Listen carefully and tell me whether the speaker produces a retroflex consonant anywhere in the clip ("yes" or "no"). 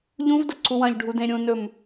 yes